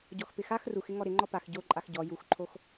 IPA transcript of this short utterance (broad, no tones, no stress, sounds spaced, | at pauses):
ɟ ɔ x p ɪ x a x r u x ɪ ŋ ɔ ɾ ɪ ŋ͡ǃ ɔ p a x ɟ o ǃʼ a x ɟ ɔ j u x ǃʰ o x